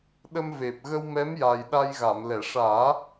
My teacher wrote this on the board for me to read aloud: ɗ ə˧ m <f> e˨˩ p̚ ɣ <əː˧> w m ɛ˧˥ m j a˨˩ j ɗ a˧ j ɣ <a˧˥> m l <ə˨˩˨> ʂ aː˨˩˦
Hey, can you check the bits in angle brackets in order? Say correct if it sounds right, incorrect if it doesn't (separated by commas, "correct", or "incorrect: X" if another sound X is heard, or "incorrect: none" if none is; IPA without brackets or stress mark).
incorrect: v, incorrect: ə˧, incorrect: a˨˩˨, incorrect: ɛ˨˩˨